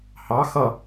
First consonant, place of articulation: glottal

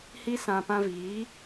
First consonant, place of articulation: glottal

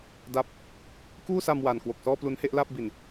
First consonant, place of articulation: alveolar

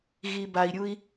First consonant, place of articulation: velar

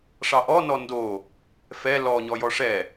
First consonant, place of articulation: retroflex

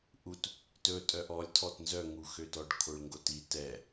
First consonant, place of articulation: glottal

